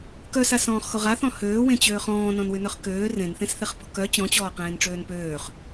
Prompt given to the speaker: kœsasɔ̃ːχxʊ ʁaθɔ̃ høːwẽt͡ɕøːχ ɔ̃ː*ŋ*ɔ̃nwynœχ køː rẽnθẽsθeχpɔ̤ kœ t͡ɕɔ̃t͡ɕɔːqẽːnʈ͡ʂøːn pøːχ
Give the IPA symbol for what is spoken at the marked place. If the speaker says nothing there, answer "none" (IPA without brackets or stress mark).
n